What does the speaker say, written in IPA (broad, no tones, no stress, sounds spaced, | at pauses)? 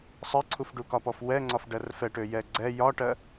sˤ ɜ ǀʰ u f ɖ u k ɒ p ɔ f w ɛ ŋ͡ǀ ɒ f ɖ ɜ r f ɛ ʈ ø j ɛ ɡ͡ǀ ɛ j ɒ ʈ ɜ